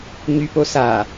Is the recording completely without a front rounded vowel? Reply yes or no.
no